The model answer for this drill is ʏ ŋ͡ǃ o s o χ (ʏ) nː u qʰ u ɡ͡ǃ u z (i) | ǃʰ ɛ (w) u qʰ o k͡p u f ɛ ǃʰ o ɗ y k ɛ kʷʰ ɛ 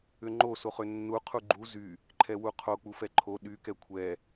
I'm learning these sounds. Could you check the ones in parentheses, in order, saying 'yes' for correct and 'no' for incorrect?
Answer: yes, no, yes

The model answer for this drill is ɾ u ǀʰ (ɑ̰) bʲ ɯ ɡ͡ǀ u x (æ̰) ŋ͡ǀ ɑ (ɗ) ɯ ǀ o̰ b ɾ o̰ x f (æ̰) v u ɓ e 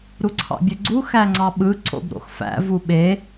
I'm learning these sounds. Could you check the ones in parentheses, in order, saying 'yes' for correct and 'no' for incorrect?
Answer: yes, no, no, yes

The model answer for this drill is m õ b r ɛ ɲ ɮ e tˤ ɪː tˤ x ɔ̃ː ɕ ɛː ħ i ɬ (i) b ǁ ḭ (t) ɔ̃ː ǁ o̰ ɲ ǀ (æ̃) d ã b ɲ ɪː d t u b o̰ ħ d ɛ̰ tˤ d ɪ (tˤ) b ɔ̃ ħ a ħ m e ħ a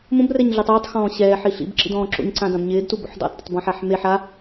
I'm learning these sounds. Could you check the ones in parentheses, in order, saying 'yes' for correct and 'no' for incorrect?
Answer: no, no, no, yes

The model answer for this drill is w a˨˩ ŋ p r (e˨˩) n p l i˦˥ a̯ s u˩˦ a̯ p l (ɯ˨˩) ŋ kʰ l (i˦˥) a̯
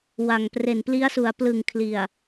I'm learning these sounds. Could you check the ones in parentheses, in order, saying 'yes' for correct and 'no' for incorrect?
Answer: yes, yes, no

